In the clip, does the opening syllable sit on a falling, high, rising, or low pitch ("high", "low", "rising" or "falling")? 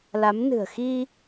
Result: rising